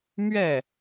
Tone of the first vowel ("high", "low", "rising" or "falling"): falling